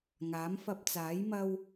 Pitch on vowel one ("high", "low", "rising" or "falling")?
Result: rising